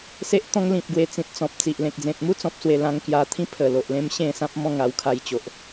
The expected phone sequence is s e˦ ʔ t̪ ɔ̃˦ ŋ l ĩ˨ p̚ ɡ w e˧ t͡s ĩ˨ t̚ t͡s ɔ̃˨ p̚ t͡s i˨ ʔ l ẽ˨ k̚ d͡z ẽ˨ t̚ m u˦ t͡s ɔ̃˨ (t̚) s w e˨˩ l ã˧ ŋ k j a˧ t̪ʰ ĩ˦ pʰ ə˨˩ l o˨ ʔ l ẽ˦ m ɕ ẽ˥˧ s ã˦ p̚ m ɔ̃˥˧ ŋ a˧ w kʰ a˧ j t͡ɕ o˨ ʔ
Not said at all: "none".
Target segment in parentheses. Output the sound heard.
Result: p̚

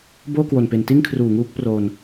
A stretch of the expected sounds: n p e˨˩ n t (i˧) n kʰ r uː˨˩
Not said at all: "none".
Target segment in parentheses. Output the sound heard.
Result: i˥˩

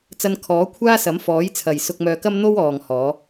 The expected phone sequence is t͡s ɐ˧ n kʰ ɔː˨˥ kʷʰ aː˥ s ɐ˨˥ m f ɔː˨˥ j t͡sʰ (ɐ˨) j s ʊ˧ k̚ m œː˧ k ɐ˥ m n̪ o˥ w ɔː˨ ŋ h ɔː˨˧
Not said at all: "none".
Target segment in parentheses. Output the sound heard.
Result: ɐ˨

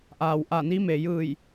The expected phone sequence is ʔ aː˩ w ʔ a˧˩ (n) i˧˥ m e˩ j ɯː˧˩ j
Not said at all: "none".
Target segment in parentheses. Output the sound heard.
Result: n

